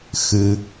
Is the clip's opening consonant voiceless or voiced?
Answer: voiceless